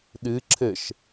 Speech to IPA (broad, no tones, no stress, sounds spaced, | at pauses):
ɗ ɨ ǁʰ ɘ ʃ